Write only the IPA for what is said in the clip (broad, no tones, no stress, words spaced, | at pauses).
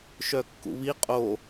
ʃœkːṵβi qʼo